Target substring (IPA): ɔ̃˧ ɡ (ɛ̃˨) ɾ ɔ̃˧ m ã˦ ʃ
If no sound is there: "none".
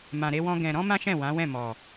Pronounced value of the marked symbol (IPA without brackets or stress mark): ɛ̃˨